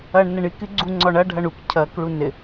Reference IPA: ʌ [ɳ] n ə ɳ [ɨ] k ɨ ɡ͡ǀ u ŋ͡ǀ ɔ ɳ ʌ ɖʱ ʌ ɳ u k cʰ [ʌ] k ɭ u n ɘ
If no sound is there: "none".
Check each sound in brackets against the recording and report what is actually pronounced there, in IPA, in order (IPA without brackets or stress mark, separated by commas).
ɳ, ɨ, ʌ